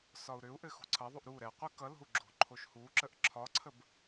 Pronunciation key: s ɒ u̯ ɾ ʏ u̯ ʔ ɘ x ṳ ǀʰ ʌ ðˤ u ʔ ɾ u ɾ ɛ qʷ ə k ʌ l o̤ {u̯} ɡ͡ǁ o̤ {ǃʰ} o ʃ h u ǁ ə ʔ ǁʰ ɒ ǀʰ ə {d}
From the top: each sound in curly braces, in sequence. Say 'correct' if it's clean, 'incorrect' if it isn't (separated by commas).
correct, correct, incorrect